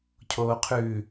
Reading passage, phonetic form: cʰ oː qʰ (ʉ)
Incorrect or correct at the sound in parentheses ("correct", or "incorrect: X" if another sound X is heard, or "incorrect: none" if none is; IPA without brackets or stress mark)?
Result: correct